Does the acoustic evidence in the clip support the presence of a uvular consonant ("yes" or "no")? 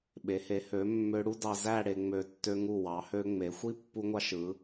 no